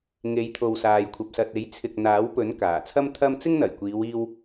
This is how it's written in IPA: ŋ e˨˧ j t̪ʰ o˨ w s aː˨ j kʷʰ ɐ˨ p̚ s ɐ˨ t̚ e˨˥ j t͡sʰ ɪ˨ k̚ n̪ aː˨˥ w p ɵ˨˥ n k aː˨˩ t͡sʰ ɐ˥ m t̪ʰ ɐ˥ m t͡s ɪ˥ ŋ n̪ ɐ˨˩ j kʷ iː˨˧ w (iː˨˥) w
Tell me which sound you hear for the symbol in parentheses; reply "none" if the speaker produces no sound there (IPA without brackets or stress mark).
iː˧